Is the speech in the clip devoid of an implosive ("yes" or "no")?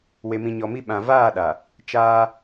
no